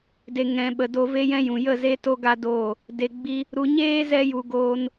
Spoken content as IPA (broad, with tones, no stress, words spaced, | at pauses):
de˨ ŋɛ̃˨ɓə˨do˧ ve˦jɛ̃˦jũ˨ jə˦˨ ze˦to˦ɡa˦doː˦˨ | de˨ɡ͡bi˧ | ɾu˨ɲeː˦zɛ˧ju˨ ɡoː˧n